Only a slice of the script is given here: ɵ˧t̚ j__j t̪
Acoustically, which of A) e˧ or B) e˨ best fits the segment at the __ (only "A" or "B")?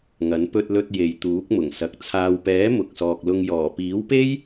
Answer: B